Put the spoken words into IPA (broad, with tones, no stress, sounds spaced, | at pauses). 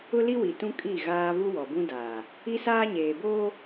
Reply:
ʊ˦ l i˦ w i˨ t ũ˦ kʼ i˦˨ ɣ aː˦ v u˦ w ɔ˨ b ũ˦ d aː˨ | i˦ s aː˦ ɲ eː˨ b oː˦